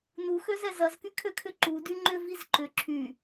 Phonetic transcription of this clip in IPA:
n u x ø z ɛ z ɐ z k y kʰ ø kʰ ʏ ǃ u d y ŋ͡ǃ ʏ v i z ǃ ʏ ǁʰ y

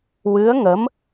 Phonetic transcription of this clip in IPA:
w ɨ˧˥ ə̯ ŋ ə˧˥ m

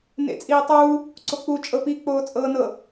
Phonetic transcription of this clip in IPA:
n ḛ t͡sʼ iː tˤ uː | ǀ o k͡p u t͡ʃʼ ɤ p i k͡p oː t͡sʼ ɤː n ɤ

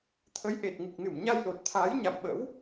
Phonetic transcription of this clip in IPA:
t̪ʰ ə˨˦ j ʔ e˨˩ t̚ ŋ ɨ˨˩ k̚ n ɨ˧˩ m ɲ a˧ j l o˨˩ t̚ t̪ʰ aː˨˦ j ɲ a̰˧˨ m ɓ ə̰˧˥ w

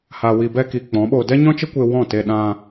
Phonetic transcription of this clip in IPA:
h a˨ w i˨ b ɛ˧ k i˨ k͡p ɔ̃˨˦ ɓ o˧ d ɛ˦ ɲ ɔ̃˦ t͡ʃ ə˦ kʷ e˧ w ɔ̃˦˨ t e˧ ɗ ã˧

